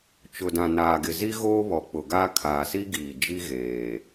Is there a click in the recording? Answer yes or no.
no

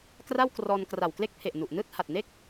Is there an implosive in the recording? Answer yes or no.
no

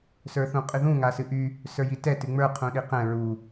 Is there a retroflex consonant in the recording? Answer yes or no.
no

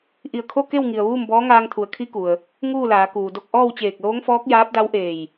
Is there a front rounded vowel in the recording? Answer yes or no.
no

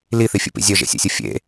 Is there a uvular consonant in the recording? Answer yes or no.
no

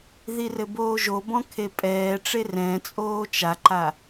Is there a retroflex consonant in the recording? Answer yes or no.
yes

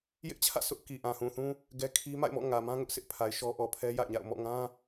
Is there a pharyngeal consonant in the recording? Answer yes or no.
no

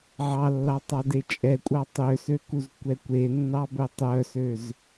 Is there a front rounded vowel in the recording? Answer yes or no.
yes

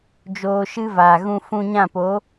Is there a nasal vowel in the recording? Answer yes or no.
yes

